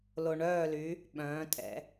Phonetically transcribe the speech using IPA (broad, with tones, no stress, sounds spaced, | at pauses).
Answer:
l o˧ ɳ œː˥˧ l y˧˥ | ɓ œ̃ː˧˥ tʼ ɛ̰˩˥